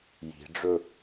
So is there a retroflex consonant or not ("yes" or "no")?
yes